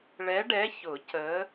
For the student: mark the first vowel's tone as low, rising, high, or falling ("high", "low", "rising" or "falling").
rising